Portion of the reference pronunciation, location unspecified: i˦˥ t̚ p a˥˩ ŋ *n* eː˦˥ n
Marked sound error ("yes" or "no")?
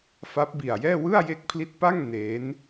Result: no